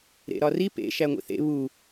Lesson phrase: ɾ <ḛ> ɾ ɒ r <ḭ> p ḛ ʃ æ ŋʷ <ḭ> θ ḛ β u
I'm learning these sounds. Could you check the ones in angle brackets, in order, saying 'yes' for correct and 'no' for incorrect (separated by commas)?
yes, no, yes